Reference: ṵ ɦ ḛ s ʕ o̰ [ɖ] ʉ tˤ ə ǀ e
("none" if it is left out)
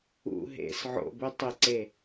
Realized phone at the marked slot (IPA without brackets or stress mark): b